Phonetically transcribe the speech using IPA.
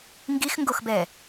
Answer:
ŋ ɡ i x ŋ ɡ o x b ɛ

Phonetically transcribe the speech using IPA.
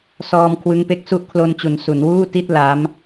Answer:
s ɔː˧ m kʰ w ɯ˦˥ ŋ p e˦˥ k̚ s u˥˩ ʔ kʰ l o˧ n t͡ɕ u˩˦ n s u˩˦ n w uː˥˩ t i˥˩ t̚ l a˦˥ m

